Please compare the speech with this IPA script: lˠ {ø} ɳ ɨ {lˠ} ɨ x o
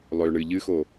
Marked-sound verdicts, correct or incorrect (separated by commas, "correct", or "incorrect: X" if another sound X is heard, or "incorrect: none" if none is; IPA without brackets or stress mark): correct, incorrect: ʎ